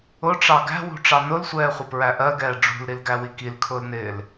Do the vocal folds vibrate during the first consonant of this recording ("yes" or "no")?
no